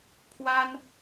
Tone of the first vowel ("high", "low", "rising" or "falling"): high